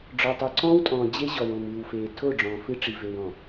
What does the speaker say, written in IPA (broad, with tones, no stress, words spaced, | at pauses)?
ɖ͡ʐɔ˨tˤɛ˨ǀɔ̃ː˦wtʼɔ̃ː˨ d͡ʑe˦ʑɔ˨wõ˨m ɨː˨wfeː˨ tʰo˦˨ ɖ͡ʐɔ̃ː˨fɨ˦ʈ͡ʂi˨ ve˨wɔ̃˨